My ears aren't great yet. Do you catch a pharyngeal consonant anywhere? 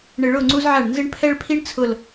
yes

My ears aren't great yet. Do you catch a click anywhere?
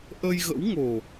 no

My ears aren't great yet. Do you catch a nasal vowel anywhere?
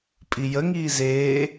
no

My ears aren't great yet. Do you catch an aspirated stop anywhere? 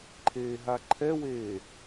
yes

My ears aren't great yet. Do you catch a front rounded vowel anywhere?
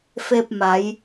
no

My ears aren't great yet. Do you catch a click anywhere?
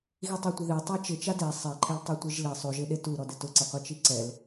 yes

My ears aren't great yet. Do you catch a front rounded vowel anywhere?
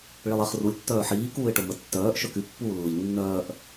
yes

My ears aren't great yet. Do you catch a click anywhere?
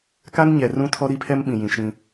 no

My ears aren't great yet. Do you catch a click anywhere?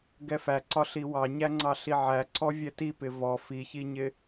yes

